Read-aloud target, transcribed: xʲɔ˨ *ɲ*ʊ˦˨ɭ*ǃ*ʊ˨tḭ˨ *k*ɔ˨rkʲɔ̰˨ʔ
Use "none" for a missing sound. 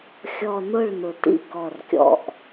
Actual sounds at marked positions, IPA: n, n, k

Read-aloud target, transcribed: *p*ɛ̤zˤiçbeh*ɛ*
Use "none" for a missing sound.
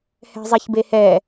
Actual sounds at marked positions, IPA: h, ɛ

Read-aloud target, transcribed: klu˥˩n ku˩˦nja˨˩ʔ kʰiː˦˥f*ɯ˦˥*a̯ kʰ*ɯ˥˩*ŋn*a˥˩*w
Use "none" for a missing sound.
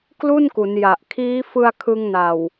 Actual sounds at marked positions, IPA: ɯ˧, ɯ˧, a˨˩

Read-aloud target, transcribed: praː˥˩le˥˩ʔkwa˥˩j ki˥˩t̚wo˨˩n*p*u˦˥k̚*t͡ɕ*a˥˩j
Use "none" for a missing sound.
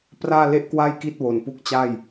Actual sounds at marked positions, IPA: p, t͡ɕ

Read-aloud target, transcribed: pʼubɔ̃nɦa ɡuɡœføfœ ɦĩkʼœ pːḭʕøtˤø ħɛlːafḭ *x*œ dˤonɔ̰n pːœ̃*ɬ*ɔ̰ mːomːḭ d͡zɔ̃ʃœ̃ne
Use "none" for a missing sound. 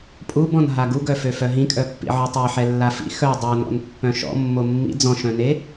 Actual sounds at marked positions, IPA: x, ʃ

